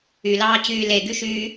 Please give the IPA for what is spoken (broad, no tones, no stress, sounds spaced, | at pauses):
y l ɑː t͡ɕ yː l e ɡ y ʃ yː